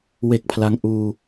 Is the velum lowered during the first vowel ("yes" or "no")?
no